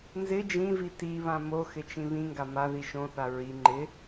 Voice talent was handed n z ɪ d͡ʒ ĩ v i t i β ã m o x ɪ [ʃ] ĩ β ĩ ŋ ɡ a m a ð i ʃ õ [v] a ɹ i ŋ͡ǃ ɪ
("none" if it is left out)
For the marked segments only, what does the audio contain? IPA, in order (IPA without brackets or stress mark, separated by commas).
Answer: t͡ʃ, θ